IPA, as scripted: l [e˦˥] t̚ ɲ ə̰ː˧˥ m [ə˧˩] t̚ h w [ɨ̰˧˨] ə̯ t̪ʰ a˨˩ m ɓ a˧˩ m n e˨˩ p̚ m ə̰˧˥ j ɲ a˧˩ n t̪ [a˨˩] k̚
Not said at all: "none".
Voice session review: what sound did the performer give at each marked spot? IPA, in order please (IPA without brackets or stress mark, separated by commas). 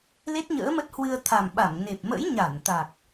e˦˥, ə˦˥, ɨ˧, a˨˩